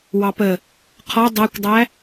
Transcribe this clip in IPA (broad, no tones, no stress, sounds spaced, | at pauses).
w ɑ p ə | qʰ ɔ dˤ æ kʷ dˤ æ